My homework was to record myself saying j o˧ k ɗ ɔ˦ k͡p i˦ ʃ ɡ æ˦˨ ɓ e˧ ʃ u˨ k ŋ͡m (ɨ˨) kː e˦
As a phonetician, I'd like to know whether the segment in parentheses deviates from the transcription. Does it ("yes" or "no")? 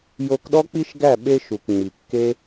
yes